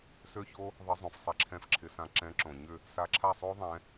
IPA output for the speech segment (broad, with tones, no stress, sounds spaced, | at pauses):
s ø˦˥ ç o˦˥ | ðˤ ɪ˨˥ zˤ õ˩ f sˤ ɛ˥˩ ǁʰ ɛ̃˥˩ f ǁʰ ɪ˨˥ s ã˨˥ ǁ ɛ̃˨˥ ǁ õ˩ ɲ ʏ˥˩ | s a˨˥ ǁʰ a˥˩ sˤ o˦˥ ðˤ ɛ̃˨˥